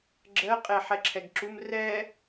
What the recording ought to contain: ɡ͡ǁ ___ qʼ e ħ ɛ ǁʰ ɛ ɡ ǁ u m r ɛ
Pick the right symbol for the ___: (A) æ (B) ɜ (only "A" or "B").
B